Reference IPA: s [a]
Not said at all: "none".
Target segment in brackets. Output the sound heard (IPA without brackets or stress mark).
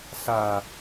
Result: a